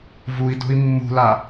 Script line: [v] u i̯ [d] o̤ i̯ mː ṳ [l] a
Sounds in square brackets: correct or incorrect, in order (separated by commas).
correct, correct, correct